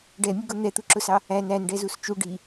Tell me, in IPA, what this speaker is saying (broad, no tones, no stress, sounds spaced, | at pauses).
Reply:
ɖ ɛ mʲ ʊ ɡ ʊ n̪ ɛ t̪ u ǁ ʊ s ɑ | æ n æ n ɖ ɛ z u s t͡ʃ u ɖ i